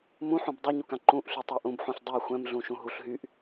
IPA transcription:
m ũ ħ ũ b dˤ u ɲ u k ã ǃ ũ ʔ ɬ y tˤ ɜ ʔ ũ b ħ ũ ɬ dˤ u xʷ ɛ̃ m ɮ ũ ʃ ũ ɦ u ɬ ɦ y ʔ

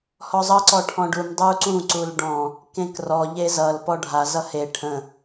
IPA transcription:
h ɔ zˤ ʌ ǀ ɔ ʈʰ ɔ̃ ɖ u m dˤ u ǀ ũ ǀ u l ɖ ɔ̃ | k ẽ k r ɔ ʎ e z ʌ l p ɔ ɖʱ a z ʌ h e ʈʰ ə̃

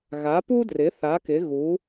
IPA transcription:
ɣ a˩˥ p u˥ d r ɪ˩˥ θ a˩˥ k ɪ˩˥ ɣ u˩˥

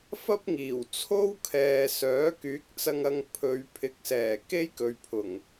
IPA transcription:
f ɐ˥ p̚ ŋ iː˨˩ w t͡sʰ o˥ w kʰ ɛː˨ s œː˨˥ k yː˨˥ k̚ t͡s ɐ˧ ŋ ɐ˧ ŋ pʰ ɵ˨˧ ɥ pʰ ɪ˨˥ k̚ s ɛː˨˩ k e˥ j k ɵ˨ ɥ pʰ ʊ˨˩ ŋ

